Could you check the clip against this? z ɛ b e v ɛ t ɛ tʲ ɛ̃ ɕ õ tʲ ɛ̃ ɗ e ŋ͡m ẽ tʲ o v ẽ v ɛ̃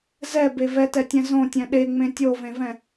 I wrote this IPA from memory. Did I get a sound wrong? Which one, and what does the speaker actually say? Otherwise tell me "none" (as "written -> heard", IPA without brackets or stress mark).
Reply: ɕ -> z